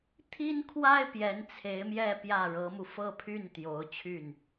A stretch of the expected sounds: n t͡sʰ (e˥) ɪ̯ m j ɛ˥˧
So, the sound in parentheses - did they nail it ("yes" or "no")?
no